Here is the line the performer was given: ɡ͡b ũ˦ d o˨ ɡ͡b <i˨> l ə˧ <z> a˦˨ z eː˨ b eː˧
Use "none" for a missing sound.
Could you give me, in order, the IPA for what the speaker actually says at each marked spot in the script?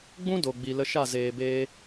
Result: i˨, ʃ

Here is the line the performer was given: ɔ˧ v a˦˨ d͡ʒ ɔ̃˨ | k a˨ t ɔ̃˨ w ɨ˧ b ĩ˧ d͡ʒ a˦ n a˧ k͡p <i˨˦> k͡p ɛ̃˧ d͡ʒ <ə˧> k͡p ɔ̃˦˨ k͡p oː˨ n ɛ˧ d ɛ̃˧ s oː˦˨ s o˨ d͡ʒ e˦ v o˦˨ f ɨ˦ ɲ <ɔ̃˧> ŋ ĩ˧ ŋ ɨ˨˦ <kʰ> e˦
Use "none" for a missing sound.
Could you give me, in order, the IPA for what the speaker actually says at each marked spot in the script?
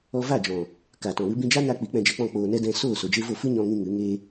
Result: i˨˦, ɛ˧, ɔ̃˧, ŋ

